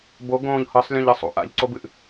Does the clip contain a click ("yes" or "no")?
yes